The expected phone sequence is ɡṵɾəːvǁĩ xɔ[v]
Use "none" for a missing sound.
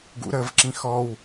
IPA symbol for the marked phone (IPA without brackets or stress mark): w